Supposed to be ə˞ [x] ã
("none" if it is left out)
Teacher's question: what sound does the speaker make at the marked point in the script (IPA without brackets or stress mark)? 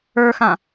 x